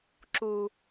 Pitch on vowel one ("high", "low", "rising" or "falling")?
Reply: low